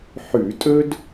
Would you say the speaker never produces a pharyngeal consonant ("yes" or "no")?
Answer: no